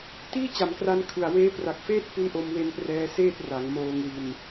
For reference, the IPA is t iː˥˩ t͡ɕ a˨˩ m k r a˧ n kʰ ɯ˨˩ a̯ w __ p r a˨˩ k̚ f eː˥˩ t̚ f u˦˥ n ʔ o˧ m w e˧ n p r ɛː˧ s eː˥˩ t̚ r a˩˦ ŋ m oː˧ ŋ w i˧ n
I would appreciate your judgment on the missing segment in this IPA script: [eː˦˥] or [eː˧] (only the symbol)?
eː˦˥